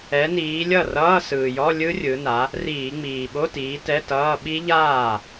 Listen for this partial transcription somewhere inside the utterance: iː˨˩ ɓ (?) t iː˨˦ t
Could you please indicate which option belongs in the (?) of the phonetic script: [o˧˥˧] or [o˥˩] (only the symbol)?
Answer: o˧˥˧